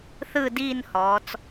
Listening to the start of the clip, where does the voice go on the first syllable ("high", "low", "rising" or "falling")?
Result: falling